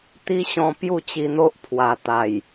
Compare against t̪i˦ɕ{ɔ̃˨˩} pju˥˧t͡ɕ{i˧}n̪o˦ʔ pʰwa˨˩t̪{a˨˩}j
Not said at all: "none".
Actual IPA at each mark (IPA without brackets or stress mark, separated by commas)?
ɔ̃˧, i˧, a˨˩